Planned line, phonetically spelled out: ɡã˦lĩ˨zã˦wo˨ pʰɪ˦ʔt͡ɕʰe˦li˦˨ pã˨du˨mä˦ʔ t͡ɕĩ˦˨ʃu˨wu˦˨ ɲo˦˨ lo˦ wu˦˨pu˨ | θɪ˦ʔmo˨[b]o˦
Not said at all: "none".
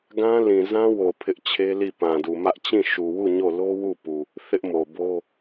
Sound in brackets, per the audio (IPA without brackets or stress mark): b